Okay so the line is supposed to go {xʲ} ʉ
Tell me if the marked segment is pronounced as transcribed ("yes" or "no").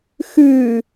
no